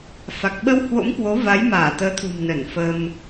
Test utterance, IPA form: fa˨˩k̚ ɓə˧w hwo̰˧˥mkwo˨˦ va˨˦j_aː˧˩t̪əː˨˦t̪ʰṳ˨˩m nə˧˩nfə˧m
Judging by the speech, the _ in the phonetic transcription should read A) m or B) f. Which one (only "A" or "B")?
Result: A